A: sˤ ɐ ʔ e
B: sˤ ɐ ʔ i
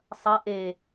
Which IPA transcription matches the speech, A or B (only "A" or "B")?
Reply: A